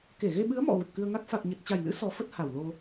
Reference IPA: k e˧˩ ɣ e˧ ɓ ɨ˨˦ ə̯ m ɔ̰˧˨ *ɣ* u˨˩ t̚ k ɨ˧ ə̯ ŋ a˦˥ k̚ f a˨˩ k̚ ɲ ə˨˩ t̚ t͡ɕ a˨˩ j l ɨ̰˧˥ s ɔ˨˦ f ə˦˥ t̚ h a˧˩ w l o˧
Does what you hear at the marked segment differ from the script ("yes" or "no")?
no